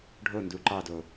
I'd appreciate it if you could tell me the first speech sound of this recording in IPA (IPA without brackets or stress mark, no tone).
ɖʱ